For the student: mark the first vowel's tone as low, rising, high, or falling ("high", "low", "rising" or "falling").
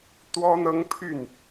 high